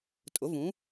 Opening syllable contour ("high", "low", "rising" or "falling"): rising